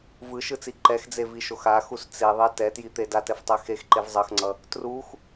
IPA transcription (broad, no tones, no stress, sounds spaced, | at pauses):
v ɯ ʃ ɯ t͡s i ǃ ɛ x d͡z e v i ʃ o x a x u s t͡s e ðˤ e t ɛ t j i t̪ e d a t ɛ f tˤ ɛ x e x ǃ e v zˤ ʌ x ŋ͡ǀ ʌ | t r u x